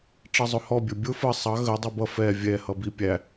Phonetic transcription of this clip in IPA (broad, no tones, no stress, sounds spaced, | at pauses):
ʈ͡ʂ ʌ zˤ ʊ h ɔ bʲ ə˞ bʲ ʊ f ə sˤ ɑ ɣ ə dˤ ɛ b ʌ f ɛ vʲ ɛ h ʌ b i pʲ æ